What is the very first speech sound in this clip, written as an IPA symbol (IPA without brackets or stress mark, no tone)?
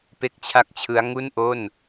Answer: p